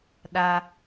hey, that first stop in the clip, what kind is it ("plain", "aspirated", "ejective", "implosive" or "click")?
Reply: implosive